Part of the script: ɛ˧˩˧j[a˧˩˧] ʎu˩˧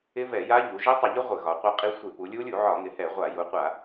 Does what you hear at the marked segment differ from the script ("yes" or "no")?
yes